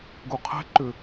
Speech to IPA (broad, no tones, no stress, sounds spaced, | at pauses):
ɡ u qʰ ɛ̤ ǃ ʏ